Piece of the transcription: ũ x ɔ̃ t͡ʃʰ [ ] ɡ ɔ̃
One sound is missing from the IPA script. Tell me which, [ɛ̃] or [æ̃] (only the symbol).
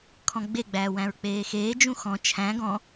æ̃